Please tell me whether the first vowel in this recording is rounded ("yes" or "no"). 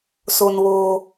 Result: yes